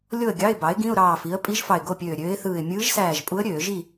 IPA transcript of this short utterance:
lʲ o˥˨ ə̯ ɡʲ ɑ˧˥˧ ɪ̯ b ɑ˩˥ ɪ̯ ɡ ĩ˧˥˧ ʊ̯ ɾ ɑː˧˩ f i˩˥ ə̯ pʼ i˧˥ ʒ f ɑ˧˩ ɪ̯ ɡ o˥˨ pʲ øː˧˩ ɾʲ øː˧˥ ɪ̯ θ ɯː˧˩ ɪ̯ mʲ ɯː˧˥ ʒ s æː˧˩ ʒ pʼ u˧˥ ə̯ ɾʲ øː˧˩˧ ʒ i˥˨

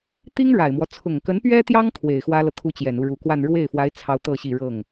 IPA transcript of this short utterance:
t̪ i˥ ŋ ɻ a˨˩ ɪ̯ m w ɔ˦ t͡sʰ ʊ˨˩ ŋ k ə˧˥ n p ɥ ɛ˥ t̪ j ɑ˥ ŋ kʰ w e˨˩ ɪ̯ x w ä˥ l ɤ˨ t̪ʰ u˥ t͡ɕ j ɛ˨˩ n u˥˩ ɻ u˨˩ k w a˥˧ n ɻ w e˥˩ ɪ̯ f w a˧˥ ɪ̯ t͡sʰ ɑ˥ ʊ̯ t̪ ɤ˥˧ ɕ i˥˧ ɻ ɤ˥˩ ŋ

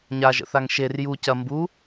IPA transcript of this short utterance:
ɲ a ʒ ə̰ θ a ŋ ʃ e r j u c ɐ m b u

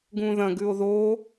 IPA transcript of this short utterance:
ɡ ũ ð ɐ̃ ɡ ʉ o̯ ð o

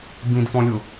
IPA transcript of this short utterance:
b ĩ d f ɔ̃ lʲ ʊ

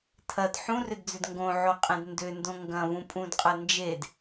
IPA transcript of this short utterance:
tʰ ɐ d ħ ũ r ʏ d d͡z ʏ d ŋ ɡ õ ʕ o qʼ ẽ d n d ʏ n d õ ŋ ɡ ɐ̃ v ũ pʼ ũ d qʼ ɐ n d͡ʒ e d

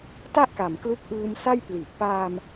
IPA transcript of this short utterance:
t a˥˩ ʔ k a˨˩ m k l u˦˥ k̚ ʔ ɯː˧ m s a˥˩ j p l i˨˩ ʔ p aː˧ m

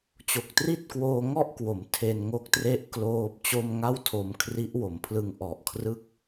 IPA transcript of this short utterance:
t͡ɕ o˨˩ k̚ t r i˥˩ t̚ k w oː˧ ŋ ɔ˥˩ ʔ k w o˩˦ m tʰ e˧ n ŋ o˦˥ k̚ t r e˦˥ ʔ k l oː˦˥ p̚ t͡ɕ o˥˩ m ŋ a˥˩ w tʰ o˧ m kʰ r i˦˥ ʔ w o˩˦ m pʰ l ɯ˧ ŋ ʔ ɔ˨˩ ʔ kʰ r ɯ˦˥ k̚

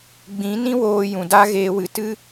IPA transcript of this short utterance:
ɡ͡b ĩ˨˦ n ĩ˦ w oː˧ j ũ˨ d a˦ ɣ eː˧ w ɨ˨˦ t ɨ˦

